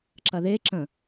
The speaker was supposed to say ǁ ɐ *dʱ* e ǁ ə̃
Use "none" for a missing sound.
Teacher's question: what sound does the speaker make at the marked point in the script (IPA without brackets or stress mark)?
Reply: ð